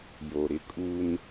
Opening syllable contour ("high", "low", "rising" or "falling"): low